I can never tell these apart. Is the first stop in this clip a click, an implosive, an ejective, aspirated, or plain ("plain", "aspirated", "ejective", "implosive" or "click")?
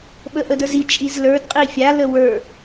implosive